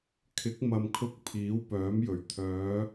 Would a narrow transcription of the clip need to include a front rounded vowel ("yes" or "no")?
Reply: yes